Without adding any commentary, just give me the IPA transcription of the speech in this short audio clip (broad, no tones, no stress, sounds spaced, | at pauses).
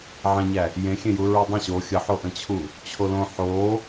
ʕ ɛ̃ ɲ æ | j ẽ xʲ ẽ j u ɹ u dˤ ə̃ ɕ o xʲ ə ħ o ʔ ə̃ t͡ɕʰ u | t͡ɕʰ o l õ ħ o